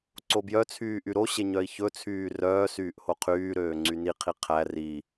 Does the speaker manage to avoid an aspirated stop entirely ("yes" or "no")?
no